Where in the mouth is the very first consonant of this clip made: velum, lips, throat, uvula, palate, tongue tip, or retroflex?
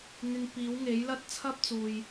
velum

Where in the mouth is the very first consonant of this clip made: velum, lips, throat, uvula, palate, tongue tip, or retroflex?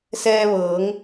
tongue tip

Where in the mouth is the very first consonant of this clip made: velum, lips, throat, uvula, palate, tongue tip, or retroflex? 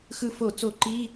velum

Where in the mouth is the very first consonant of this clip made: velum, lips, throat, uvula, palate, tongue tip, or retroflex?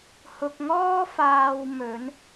throat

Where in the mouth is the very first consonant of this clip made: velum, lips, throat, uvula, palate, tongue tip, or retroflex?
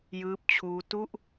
palate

